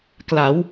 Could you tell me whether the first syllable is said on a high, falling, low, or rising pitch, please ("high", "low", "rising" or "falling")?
rising